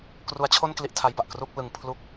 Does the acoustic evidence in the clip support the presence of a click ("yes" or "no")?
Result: no